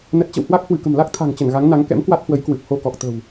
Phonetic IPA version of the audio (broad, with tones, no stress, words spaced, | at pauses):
nə˦˥t̚ t͡ɕə̰˧˨whwa˦˥k̚ hwɨ˧˩kə̤˨˩mla˦˥k̚ t̪ʰa̤˨˩ŋt͡ɕə˧˩nɣa˨˦ŋna˨˦ŋ kɛ̰˧˥mkwa˦˥t̚hwə˨˦j kwɨ˨˩p̚ho˧kɔ˨˩k̚ t̪ə̤˨˩w